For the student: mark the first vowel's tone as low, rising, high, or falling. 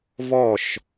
falling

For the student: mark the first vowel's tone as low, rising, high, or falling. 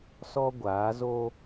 high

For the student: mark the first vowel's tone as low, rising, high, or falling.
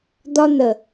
high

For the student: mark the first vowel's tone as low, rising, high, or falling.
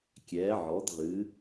rising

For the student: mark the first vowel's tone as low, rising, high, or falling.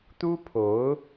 high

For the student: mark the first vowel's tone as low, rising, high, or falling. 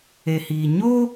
low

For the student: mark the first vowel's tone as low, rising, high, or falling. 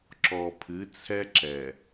low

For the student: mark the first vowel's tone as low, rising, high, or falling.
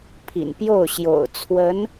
low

